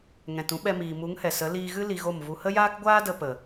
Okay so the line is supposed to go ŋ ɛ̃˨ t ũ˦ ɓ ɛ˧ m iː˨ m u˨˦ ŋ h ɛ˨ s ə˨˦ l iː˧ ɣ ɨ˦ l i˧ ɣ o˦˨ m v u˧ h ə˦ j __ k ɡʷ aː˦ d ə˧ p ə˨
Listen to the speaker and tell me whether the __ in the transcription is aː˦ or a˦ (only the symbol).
aː˦